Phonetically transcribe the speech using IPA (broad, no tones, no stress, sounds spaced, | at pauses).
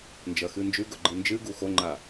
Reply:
n d͡ʒ ɐ x ɨ n d͡ʒ ʉ ɡ ɵ ɡ͡ǃ ɨ n d͡ʒ ɨ ɡ u x o ŋ͡ǃ a